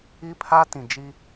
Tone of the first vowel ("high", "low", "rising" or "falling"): high